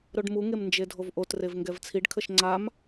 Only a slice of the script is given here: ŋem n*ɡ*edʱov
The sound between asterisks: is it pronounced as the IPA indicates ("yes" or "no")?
no